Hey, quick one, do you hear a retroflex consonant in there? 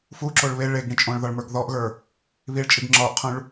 yes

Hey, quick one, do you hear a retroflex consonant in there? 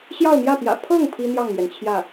no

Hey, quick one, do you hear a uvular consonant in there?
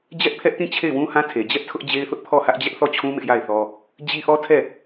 no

